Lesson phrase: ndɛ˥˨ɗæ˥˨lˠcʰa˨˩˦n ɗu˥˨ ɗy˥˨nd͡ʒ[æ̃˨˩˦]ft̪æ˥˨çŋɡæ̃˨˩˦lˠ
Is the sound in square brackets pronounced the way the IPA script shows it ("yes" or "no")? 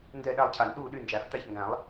no